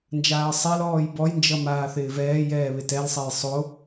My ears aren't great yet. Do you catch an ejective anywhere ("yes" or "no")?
no